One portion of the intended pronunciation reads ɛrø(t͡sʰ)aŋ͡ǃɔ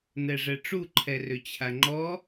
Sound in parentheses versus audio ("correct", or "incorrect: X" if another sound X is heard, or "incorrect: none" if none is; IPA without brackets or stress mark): incorrect: t͡ɕʰ